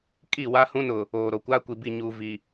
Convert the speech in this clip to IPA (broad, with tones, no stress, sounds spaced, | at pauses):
kʼ i˦˨ w a˦ h ũ˦ n ʊ˨ | oː˨ ɾ o˨ kʷ aː˦ kʷ i˨ b i˦˨ ɲ uː˨ v i˨